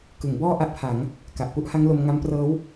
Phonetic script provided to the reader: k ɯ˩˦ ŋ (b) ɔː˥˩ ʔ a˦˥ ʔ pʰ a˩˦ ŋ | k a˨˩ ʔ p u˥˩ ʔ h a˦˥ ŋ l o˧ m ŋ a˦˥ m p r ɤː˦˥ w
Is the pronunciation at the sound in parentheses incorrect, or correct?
correct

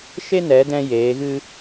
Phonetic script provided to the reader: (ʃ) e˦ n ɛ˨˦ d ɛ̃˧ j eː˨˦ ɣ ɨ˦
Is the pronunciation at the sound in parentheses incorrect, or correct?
correct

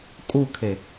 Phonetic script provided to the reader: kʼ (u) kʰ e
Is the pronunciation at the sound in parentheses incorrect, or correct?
correct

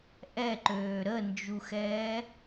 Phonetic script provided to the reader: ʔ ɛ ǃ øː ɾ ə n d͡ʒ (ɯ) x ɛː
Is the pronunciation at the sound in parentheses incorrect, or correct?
incorrect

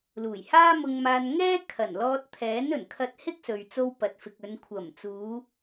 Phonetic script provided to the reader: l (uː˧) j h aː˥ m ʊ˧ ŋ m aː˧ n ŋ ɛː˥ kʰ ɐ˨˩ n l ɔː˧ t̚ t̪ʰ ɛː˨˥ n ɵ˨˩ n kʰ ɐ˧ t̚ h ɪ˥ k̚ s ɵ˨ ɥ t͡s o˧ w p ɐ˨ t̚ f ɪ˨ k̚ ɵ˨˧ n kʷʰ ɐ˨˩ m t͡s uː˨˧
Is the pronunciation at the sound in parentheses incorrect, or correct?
incorrect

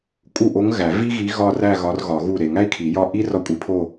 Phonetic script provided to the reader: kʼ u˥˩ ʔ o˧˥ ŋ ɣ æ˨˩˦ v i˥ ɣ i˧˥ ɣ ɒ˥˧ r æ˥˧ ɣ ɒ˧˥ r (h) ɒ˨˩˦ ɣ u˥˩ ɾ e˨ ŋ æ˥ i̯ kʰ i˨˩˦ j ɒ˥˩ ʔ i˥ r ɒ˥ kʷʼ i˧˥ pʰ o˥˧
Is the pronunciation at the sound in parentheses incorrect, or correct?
incorrect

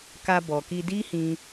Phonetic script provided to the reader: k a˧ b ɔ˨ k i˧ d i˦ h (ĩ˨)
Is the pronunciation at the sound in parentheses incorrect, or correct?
incorrect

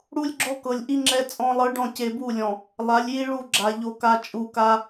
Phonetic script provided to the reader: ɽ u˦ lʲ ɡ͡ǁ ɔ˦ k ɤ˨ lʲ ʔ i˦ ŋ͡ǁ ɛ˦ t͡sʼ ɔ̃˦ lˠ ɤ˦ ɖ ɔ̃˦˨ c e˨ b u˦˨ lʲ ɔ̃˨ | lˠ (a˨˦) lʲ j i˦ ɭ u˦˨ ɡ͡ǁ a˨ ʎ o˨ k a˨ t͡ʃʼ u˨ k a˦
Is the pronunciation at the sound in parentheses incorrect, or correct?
correct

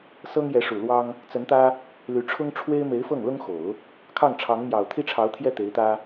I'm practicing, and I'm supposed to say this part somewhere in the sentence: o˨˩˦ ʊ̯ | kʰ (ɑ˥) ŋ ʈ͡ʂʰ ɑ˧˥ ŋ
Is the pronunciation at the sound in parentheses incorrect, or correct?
incorrect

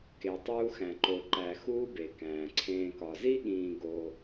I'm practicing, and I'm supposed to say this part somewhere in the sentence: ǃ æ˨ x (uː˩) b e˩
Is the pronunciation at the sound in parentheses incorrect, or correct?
incorrect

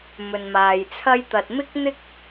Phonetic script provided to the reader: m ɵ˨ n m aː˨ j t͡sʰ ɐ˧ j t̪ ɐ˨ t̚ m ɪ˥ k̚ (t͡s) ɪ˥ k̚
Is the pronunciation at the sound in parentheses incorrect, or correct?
incorrect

